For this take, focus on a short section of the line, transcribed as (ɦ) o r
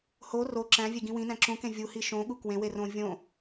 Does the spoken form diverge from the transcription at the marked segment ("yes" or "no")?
yes